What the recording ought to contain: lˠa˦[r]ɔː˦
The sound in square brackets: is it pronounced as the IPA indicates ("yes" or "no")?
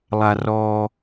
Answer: yes